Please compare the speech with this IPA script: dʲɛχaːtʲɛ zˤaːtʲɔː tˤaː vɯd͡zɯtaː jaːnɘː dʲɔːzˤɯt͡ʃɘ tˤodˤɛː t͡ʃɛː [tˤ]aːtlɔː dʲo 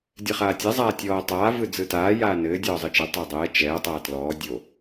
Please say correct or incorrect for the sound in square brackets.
correct